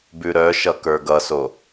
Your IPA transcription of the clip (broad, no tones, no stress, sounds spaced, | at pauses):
b ʉ ɾ œ ʃ ʌ k ə˞ ɡ ʌ s o